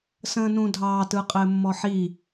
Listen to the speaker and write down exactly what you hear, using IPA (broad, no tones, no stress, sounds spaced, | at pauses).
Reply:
s ə̃ː n ũ dʱ ɑː t ɯ qʼ ɘː mː ɔ ħ i